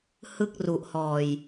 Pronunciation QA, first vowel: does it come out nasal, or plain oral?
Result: oral